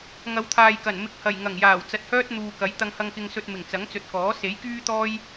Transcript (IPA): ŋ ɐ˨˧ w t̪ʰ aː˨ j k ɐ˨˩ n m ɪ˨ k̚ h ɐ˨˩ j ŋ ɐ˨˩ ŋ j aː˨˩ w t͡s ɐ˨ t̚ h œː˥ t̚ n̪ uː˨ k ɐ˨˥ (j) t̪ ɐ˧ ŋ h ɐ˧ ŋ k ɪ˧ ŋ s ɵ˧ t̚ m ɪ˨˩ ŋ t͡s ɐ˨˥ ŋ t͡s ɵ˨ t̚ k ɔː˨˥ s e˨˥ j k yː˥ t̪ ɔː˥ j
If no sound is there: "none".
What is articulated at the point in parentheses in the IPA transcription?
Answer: j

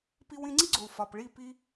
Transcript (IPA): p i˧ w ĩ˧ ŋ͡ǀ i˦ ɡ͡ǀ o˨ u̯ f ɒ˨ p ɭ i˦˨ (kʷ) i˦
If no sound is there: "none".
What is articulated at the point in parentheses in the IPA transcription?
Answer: p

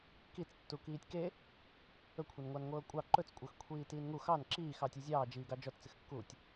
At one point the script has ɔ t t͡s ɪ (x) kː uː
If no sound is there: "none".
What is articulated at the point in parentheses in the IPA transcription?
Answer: x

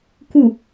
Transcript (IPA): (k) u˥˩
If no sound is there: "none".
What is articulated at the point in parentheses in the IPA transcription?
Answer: k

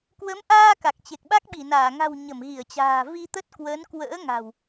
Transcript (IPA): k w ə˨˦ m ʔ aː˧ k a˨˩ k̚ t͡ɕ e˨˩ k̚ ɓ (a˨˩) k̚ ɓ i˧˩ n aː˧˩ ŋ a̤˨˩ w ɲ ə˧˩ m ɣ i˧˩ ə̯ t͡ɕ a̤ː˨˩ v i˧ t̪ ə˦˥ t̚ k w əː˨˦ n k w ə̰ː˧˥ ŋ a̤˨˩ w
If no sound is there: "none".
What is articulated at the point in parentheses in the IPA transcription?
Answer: a˦˥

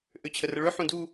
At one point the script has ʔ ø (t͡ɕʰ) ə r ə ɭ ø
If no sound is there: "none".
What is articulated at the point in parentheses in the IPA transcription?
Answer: t͡ɕʰ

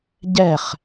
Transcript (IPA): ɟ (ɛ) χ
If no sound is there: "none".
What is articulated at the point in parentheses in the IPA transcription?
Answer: ɛ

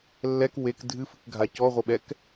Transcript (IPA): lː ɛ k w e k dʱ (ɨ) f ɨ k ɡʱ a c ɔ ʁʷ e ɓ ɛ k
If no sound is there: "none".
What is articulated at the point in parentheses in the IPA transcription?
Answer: ɨ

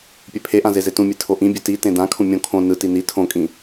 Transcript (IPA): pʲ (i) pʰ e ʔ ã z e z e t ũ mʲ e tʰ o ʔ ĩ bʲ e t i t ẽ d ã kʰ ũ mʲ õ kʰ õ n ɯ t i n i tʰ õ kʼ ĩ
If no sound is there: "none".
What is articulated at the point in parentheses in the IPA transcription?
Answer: e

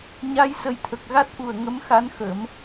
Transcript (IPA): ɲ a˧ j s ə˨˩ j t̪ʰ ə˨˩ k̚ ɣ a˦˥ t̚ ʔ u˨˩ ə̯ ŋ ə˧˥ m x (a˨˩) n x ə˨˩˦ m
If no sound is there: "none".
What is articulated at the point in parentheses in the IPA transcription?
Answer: a˧˥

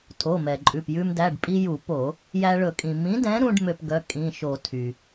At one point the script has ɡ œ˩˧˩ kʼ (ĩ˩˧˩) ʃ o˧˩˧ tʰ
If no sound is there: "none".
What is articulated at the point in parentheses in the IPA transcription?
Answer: ĩ˩˧˩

